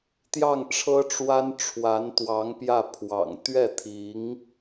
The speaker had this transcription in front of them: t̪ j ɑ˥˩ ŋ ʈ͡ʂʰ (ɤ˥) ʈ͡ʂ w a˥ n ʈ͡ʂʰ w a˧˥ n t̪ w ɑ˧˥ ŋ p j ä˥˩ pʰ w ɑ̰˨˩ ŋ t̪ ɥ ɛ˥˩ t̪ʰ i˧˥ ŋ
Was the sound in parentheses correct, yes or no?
yes